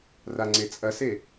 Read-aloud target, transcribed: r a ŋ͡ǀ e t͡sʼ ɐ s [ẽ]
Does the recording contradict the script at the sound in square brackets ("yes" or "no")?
yes